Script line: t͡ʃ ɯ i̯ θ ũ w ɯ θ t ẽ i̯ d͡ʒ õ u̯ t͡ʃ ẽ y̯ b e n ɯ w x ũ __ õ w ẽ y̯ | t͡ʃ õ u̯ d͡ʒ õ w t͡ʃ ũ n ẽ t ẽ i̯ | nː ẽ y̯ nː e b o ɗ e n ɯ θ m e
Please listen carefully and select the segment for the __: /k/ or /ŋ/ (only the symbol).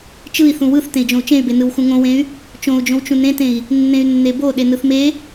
ŋ